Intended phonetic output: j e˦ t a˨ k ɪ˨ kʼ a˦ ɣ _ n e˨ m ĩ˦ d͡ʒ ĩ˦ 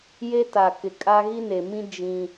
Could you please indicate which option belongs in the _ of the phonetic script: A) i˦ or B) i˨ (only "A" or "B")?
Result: A